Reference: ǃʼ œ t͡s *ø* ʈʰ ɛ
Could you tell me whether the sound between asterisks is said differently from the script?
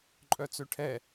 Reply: no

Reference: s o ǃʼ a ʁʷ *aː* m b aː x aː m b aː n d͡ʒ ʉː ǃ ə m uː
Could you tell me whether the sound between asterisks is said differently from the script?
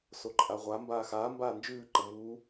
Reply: yes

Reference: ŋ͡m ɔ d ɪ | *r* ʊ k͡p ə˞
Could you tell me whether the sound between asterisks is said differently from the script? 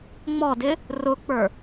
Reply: no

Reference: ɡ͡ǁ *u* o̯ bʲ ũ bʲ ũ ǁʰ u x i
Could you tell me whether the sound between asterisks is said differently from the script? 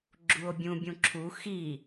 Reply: no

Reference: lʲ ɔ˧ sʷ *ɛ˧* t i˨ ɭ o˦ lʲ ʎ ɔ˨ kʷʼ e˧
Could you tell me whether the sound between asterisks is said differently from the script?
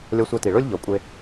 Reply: no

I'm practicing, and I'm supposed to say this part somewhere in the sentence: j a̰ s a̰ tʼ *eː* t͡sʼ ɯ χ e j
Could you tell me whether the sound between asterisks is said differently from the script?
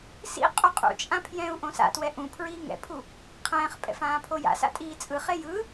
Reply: yes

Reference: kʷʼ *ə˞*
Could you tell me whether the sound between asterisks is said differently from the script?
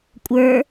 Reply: no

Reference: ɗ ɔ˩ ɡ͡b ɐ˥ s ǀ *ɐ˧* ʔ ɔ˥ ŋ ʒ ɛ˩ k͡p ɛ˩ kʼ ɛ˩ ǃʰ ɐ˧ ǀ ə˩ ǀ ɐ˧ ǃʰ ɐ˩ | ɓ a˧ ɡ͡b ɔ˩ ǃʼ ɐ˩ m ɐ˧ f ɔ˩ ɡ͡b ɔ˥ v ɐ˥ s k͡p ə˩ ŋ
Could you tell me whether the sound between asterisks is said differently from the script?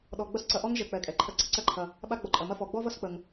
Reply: no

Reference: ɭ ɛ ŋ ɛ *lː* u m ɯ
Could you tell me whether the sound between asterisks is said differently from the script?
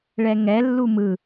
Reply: no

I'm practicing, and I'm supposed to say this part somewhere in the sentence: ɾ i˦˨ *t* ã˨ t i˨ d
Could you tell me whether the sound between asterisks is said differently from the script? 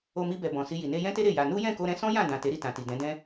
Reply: no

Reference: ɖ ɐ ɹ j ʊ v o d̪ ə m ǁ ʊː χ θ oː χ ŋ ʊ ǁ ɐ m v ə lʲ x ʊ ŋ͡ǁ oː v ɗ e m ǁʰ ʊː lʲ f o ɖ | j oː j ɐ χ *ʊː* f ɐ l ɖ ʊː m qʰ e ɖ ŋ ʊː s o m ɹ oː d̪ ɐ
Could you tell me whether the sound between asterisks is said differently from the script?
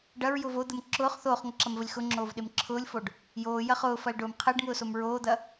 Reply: no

